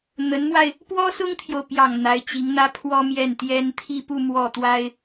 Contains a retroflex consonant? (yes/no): no